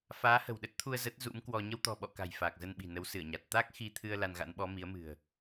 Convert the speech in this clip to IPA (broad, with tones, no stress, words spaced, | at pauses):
faː˨˦hə̤˨˩wɗə˦˥t̚t̪ʰu˧ə̯ zə˦˥t̚ zṵ˧˥mkwɔ˧ ɲə˧wt̪ɔ̤˨˩ɓɔ̰˧˨ ka̤˨˩j faː˨˩k̚zə˧nɓi̤˨˩ nə˨˦wsɨ˧˩ə̯ɲa˨˩t̚ t̪a˦˥k̚ xi˧t̪ʰɨ˧ə̯ la˧nɣa̰˧˥nɓɔ˨˦ mi˨˦ə̯mɨ̤˨˩ə̯